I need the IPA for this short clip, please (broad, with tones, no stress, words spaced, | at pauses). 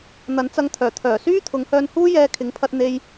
n̪ɐ˨˥nt͡sɐ˧ŋt̪ʰœː˨˩t̪ʰœː˨˩ syː˥t̪ʰʊ˨˧ŋhœː˧nhuː˥ jɛː˧kʰɪ˨˥ŋpʰɐ˧t̚ n̪e˧j